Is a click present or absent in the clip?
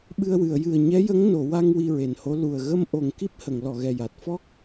absent